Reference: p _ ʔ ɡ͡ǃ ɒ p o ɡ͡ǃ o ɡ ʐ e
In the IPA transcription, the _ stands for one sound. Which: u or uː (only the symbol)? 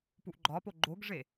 u